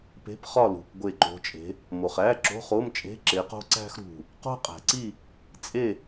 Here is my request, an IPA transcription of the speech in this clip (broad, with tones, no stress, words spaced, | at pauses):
pe̤˧˥˧pχɒ˥˨ lṳ˩p ɡʷe˧˩ǃo̤˨˦t͡ʃʼe̤˨˦ | mo˩χæ˧˥˧ ǁo̤˧˥˧χo˧˥˧mt͡ʃʼe̤˧˥˧ ǁe˨˦qo̤˥ ǀæ̤˥xɾṳ˧˩ | qo̤˥qʼæ̤˩ǀi˥˨ | t͡sʼe˥˨